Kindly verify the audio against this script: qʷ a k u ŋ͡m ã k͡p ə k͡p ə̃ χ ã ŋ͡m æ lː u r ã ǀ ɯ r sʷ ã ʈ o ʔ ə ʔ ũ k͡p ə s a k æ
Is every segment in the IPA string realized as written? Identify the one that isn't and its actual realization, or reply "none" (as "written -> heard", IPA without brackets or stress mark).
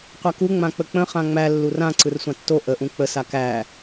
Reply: ʈ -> tː